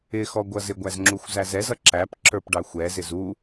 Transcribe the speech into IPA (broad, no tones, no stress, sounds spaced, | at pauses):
ɪ x ɔ ɡʷ ʌ z ɪ ɡʷ æ z ŋ͡ǁ u xʷ z æ z ɛ z ʌ ǁ æ p ǁ ə˞ p ɖ ɑ xʷ ɛ z ɪ z u